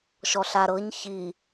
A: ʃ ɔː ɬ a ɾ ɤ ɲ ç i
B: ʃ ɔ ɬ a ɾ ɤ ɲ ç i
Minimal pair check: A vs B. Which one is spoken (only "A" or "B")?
B